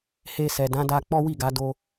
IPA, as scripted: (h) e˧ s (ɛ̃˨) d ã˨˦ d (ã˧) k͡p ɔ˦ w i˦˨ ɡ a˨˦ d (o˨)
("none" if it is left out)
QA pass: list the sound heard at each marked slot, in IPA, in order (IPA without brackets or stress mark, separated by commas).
h, ɛ˨, a˧, o˧